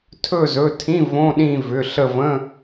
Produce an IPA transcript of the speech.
tʰ ɵ˦˨ z ɵ˩˧˩ tʰ ĩ˧˥˧ v õ˧˥˧ ɗ ĩ˦˨ v ʏ˩˧˩ ɬ ə˦˨ v ə̃˧˥˧

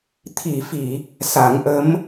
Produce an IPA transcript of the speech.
t̪ʰ i˨˩˨ f i˨˩˨ | s a˨˩˦ ŋ ʔ ə˧˥ m

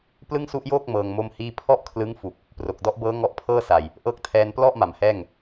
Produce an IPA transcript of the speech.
p l ɯ˥˩ ŋ s u˦˥ ʔ j oː˥˩ k̚ m ɤː˧ ŋ m o˥˩ m h iː˥˩ pʰ ɔ˥˩ ʔ kʰ l ɯ˦˥ ŋ f u˨˩ k̚ | p r o˨˩ k̚ d ɔ˦˥ ʔ b ɤː˦˥ ŋ ɔ˦˥ ʔ pʰ ɤː˥˩ s a˨˩ j | ʔ ɤː˦˥ k̚ tʰ ɛː˧ n p l ɔ˥˩ ʔ m a˩˦ m h ɛː˥˩ ŋ

